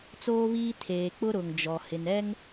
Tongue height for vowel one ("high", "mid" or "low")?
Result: mid